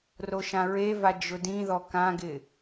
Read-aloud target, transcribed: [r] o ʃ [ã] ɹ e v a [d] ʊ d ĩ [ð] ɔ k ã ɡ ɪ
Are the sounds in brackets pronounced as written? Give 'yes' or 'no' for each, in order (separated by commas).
yes, yes, no, yes